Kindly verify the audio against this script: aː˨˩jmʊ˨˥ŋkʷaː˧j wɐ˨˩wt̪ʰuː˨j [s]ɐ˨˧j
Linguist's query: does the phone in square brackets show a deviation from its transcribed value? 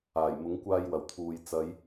yes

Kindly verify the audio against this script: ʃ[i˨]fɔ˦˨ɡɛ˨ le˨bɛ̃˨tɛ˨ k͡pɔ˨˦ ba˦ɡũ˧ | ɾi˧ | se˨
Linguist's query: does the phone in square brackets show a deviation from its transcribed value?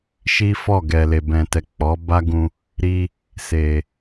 yes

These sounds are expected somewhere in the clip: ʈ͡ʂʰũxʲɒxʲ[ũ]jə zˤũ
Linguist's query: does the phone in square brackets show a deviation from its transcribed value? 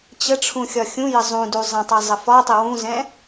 no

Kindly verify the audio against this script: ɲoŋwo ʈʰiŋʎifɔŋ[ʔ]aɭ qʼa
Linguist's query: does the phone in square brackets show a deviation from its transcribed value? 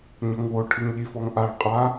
no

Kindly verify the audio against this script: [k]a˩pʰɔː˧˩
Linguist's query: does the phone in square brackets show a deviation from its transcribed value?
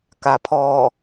no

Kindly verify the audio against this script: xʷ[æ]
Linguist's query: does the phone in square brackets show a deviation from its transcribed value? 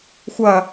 yes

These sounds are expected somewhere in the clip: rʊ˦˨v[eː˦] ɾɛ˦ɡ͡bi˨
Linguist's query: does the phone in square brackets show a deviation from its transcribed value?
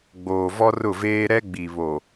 no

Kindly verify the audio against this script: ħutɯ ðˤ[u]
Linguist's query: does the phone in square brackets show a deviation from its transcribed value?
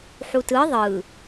yes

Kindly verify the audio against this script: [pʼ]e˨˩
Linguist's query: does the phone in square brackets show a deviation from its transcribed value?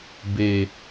yes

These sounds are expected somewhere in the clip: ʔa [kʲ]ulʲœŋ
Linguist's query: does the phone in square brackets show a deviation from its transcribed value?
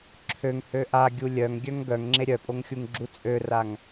yes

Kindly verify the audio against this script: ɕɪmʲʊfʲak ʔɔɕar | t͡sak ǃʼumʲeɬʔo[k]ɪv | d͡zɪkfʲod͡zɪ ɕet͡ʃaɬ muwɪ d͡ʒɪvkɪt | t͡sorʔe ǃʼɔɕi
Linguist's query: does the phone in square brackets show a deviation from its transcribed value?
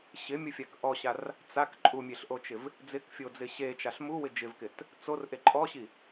yes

